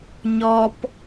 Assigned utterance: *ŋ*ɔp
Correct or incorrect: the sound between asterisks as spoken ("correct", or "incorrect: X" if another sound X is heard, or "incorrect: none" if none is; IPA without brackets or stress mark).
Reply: incorrect: ɲ